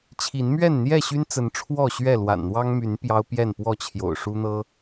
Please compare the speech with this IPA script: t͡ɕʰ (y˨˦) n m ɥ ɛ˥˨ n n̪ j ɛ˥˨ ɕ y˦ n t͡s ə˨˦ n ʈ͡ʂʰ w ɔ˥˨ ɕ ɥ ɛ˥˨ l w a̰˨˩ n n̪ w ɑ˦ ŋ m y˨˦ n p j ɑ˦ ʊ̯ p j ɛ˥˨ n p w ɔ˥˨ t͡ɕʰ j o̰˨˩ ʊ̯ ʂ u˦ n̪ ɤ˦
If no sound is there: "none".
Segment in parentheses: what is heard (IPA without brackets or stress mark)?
i˨˦